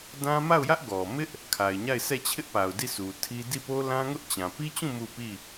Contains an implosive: no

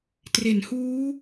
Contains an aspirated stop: no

